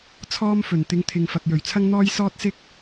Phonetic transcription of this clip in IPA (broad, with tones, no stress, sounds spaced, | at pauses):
t͡sʰ ɔː˥ m f ɵ˨˩ n t̪ ɪ˧ ŋ t̪ʰ ɪ˨ ŋ f ɐ˨ k̚ j ɵ˨˩ ɥ t͡sʰ ɐ˥ ŋ n̪ ɔː˥ j s ɔː˥ t̚ s ɪ˥ k̚